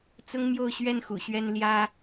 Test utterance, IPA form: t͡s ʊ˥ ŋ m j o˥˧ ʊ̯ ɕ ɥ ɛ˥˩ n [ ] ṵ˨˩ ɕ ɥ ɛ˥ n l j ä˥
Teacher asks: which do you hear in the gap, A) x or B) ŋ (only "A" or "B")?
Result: A